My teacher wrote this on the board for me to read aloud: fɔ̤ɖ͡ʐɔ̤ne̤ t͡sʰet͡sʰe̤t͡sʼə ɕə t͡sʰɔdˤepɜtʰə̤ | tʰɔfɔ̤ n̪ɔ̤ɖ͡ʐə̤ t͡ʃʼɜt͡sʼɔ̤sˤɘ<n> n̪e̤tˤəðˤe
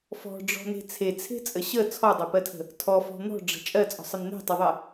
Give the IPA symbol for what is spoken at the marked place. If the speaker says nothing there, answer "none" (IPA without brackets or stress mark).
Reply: n